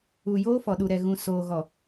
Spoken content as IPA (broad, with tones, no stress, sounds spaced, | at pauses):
u˨ j oː˦ f ɔ˨ ɗ u˨ ɾ ɛ˨ ɣ ũ˨ s oː˨ ɣ ɔ˨